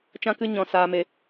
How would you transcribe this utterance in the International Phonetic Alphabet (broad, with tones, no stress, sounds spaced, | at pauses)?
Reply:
t͡ʃ ã˦ k ɨ˦ ɲ ɔ̃˧ s aː˧ m e˧